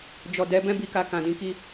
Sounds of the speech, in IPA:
d͡ʒ ɔ˨ d ɛ˨˦ b ɛ̃˦ b i˧ k a˨ k ã˨ d ĩ˧ k i˦

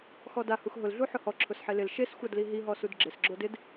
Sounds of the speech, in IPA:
x ɔ d a h u x ɦ ʊ l ɮ u ħ ʊ h ɔ ǁʰ ʊ s ħ e l ɪ l ʃ e s xʷ a d l i ɦ i ɦ ɔ s u d ɡ͡ǁ ɪ s ɡ͡ǁ o d ɪ d

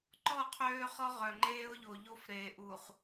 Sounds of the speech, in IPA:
ǃ ɔ˦˨ qʰ øː˦ χ ɔ˦ ʁ œ˨ ŋ͡ǃ eː˦ ʊ̯ ʎ o˨ ʎ o˦ f ɾ eː˨ ʔ u˨ χ

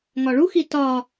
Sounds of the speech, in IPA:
ŋ ɒ ɭ u x i t ɒ

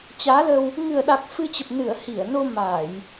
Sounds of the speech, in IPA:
t͡ɕ aː˨˦ l ə˧ w | ŋ ɨ˨˩ ə̯ ɗ a˨˩ k̚ f ɨ˧ t͡ɕ ə˨˩ p̚ n ɨ˧˩ ə̯ h i˧˩ ə̯ n o˧ m aː˧˩˨ j

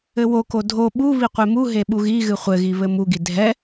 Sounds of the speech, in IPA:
ɘ w o k o dʱ o ɓ u β i qʷ e m u ɦ e ɓ u ɣ i ɣ ɨ χʷ ɘ ɣ i β ɘ m u ɡ i dʱ ɛ

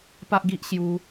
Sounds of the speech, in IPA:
p a˦ ʔ ɡ i˦ ʔ ɕ j u˦

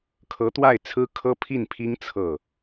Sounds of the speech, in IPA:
kʰ ɤ˧˥ t̪ w a˥˩ ɪ̯ t͡sʰ ɹ̩˥ kʰ ɤ˥ pʰ i˥˩ n pʰ i˥ ŋ t͡sʰ ɤ˥˩

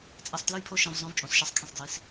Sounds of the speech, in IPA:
t͡sʼ ɛ˧ sˤ t l ɯ˦ j pʰ o˦ ʃ ẽ˧ v zˤ õ˦ v t͡ʃʼ õ˨˦ s ʃ ɛ˦ sˤ kʰ ẽ˦˨ sˤ d j i˧ s

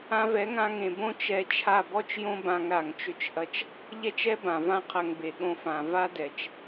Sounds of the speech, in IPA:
ã˧ v ɛ˨˦ ŋ ã˧ ŋ ẽ˨ b õ˦ t͡ʃ ɛ˧ t͡ʃʰ a˦˨ b ɔ˦ t͡ʃ j õ˦ b ã˧ ŋ ɾ a˨ ŋ t͡ʃ ʏ˦ t͡ʃ ʔ ɐ˦ t͡ʃ | ʎ ɛ˦ t͡ʃ ɛ˦ b ã˨ v ã˦ qʰ ɐ˧ ŋ b e˨ ɠ õ˧ f ã˨ v a˦ d ɛ˨ t͡ʃ

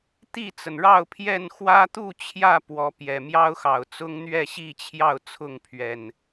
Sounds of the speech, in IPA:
t̪ i˥˨ t͡s ə˩ n ɻ ɑ˥˨ ʊ̯ pʰ j ɛ˥˨ n x w ä˦ t̪ u˥˨ t͡ɕʰ j ä˥˨ p w ɔ˨˦ p j ɛ˨˩ m j ɑ˦ ʊ̯ x ɑ˨˩ ʊ̯ t͡s ʊ˦ ŋ n̪ ɥ ɛ˥˨ ɕ i˥˨ t͡ɕʰ j ɑ˥˨ ʊ̯ t͡sʰ ʊ˥˨ ŋ pʰ ɥ ɛ˨˩ n

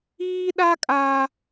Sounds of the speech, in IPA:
iː˦ ɗ a˦ kʼ aː˦

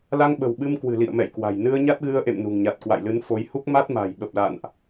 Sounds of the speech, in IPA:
l a˧ ŋ ɓ ə̤˨˩ w ɓ ɨ˧ m k w ɨ̤˨˩ l ḭ˧˨ ə̯ m ɛ̰˧˨ j k w a̤˨˩ j n ɨ˧ ə̯ ɲ a˦˥ t̚ ɣ ɨ˧ ə̯ ʔ ḛ˧˨ m n ṳ˨˩ ŋ ɲ a˨˩ t̚ k w a̰˧˨ j l ɨ˨˦ n f o˨˦ j h u˦˥ k̚ m a˦˥ t̚ m a̤˨˩ j ɓ ə˨˩ p̚ l a̰˧˨ n ʔ

